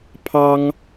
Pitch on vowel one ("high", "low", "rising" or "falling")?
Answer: high